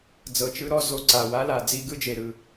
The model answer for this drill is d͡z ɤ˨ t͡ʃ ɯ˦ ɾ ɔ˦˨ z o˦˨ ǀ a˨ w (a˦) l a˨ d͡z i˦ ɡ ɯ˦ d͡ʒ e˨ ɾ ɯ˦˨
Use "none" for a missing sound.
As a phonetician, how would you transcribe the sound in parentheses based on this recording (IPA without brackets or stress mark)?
a˦